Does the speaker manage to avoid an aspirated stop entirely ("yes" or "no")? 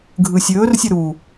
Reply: yes